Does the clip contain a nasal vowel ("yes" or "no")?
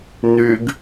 no